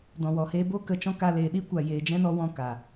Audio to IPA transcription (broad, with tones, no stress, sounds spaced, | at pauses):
d ɔ̃˨ w ɔ˨ h eː˦ b o˦ k ə˧ t͡ʃ ɔ̃˦ k a˧ l eː˨ ɗ i˦ kʷ a˨ j eː˨ d͡ʒ ɛ̃˦ n ɔ˧ w ɔ̃˦˨ k a˨